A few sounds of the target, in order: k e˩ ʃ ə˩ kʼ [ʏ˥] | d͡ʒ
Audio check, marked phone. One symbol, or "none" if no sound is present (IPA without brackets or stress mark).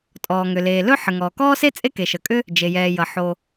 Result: ʏ˥